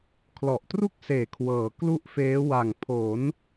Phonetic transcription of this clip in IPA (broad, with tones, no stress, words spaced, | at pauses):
kʰlɔ˨˩ʔtru˥˩k̚seː˨˩ kʰwɤː˩˦klu˥˩ʔfeː˦˥ wa˨˩ŋpʰo˩˦n